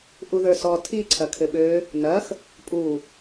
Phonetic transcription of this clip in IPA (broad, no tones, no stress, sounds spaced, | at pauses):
ʔ u ð ə˞ s ɔ tʰ i ǀʰ ɐ kʰ ɘ ɓ ø | n ɐ x | pʼ u